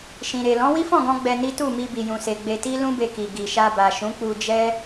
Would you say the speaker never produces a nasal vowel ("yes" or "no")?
no